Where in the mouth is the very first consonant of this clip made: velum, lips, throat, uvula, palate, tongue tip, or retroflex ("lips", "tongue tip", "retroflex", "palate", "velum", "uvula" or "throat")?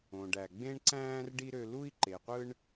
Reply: retroflex